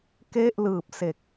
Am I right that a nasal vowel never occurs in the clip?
yes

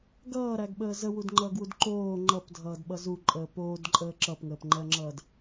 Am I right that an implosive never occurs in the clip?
no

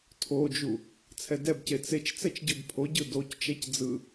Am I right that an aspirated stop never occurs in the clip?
no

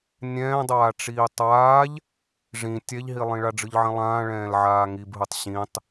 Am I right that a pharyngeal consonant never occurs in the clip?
no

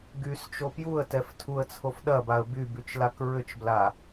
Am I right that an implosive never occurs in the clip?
no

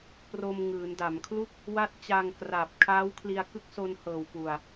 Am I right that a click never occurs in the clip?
yes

